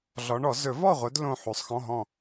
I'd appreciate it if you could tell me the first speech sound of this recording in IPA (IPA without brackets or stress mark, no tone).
ɮ